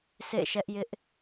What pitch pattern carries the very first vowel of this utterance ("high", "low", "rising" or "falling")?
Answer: falling